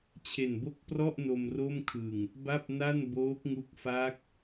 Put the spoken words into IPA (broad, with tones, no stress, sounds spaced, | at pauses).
t͡ɕʰ e˨˩ n b o˥˩ k̚ p r ɔ˥˩ ʔ n o˧ m r o˥˩ m kʰ ɯ˨˩ ŋ | b a˥˩ p̚ n a˥˩ n b oː˦˥ k̚ ŋ u˦˥ k̚ f a˦˥ k̚